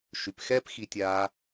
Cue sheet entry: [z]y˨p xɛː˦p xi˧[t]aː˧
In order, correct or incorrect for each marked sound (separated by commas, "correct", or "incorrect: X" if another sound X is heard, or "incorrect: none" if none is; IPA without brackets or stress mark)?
incorrect: ʃ, incorrect: tʲ